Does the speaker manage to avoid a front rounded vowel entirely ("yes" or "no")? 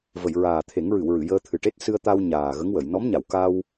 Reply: yes